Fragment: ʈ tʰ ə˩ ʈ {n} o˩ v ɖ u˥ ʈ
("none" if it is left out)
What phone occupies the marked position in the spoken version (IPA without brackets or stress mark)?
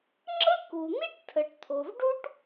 t̪ʰ